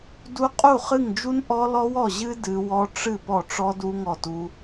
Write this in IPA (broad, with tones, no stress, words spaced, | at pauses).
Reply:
du˦˥ qʼu˥˩χɨ˥˩ŋd͡ʒu˦˥n ʔɔ˦˥lɔ˦˥wɔ˥˩ʑɨ˦˥ dɨ˦˥ wɔ˦˥ ʈ͡ʂɨ˥˩ pɔ˥˩ʈ͡ʂɔ˦˥ du˦˥ŋɔ˥˩tu˦˥